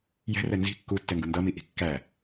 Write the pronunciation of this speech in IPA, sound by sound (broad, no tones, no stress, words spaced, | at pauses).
jɛ̤rɛ nzi̤ kːutːɛŋɡu ndʌmiʔi̤ kːæ